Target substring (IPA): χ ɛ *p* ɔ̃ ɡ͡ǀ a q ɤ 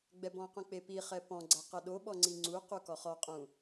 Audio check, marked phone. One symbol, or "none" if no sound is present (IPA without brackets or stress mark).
p